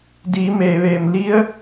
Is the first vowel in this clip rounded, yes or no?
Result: no